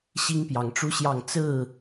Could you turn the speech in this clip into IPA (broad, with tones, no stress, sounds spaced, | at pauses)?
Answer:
ɕ i˦ ŋ p j ɑ˨˦ ŋ ʈ͡ʂ u˦ ɕ j ɑ˥˨ ŋ t͡s ɹ̩˥˨